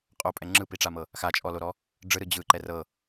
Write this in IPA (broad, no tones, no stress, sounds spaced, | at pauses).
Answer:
qʼ o pʼ ɛ ŋ͡ǁ ɯ p i ʈ͡ʂ a m ɤ | x a t͡ʃʼ ɔ l o ɾ ɔ | ɖ͡ʐ ɯ ɾ ɯ d͡ʑ ɯ ǃ ɛ r ɤ